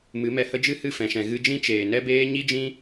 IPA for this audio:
m ɨ˨˦ m ɛ˧ h ə˦ d͡ʒ ɨ˦ h ɨ˦˨ f ɛ̃˨ ʃ ɛ̃˨ ɣ ɨ˧ d͡ʒ ĩ˦ t͡ʃ eː˨ n ɛ˦ b eː˦ ɲ i˦ d͡ʒ ĩ˦

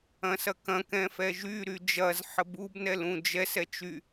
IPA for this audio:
ɐ̃ s ɐ k ɐ̃ k ɛ̃ f ɛ ʒ y ɾ y d͡ʒ ɐ z ħ ə b u b n ɛ l ũ d͡ʒ ɛ s ɛ t͡ʃ y

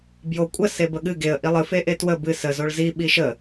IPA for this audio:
b j o kʷʼ ə s e b ə ɠ ɨ ɡ e ə̯ ʔ i lˠ ɨ f e ʔ e t w ə b ɨ s ə z o ɭ z i ɓ i ʃ ə

